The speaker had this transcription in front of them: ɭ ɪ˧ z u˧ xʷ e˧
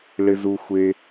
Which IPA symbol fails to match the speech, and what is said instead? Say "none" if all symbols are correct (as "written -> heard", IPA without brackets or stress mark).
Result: none